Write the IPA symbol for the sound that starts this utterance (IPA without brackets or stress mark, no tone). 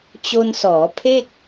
t͡ɕ